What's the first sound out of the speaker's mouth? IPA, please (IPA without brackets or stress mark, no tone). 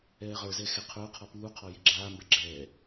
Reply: ɛː